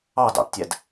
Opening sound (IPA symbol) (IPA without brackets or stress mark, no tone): ɑ